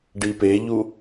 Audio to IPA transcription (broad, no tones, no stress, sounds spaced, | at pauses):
ɖ i p e ʎ u